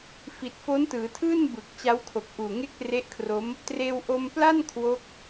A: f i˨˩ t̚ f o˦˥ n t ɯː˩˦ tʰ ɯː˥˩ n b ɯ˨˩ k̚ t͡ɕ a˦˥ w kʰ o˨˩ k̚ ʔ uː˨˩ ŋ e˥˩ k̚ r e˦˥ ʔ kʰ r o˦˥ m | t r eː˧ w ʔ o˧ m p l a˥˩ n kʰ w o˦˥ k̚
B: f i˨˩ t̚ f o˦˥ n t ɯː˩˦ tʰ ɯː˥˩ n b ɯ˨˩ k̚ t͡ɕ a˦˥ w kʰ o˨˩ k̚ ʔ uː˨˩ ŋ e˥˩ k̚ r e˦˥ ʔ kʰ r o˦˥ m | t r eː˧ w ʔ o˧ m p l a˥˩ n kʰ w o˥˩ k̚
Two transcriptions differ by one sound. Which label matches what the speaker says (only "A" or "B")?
A